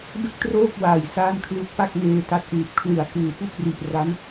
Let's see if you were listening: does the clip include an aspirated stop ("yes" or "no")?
yes